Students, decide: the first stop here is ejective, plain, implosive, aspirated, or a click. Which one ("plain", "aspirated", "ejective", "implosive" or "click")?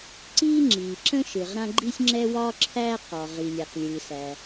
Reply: click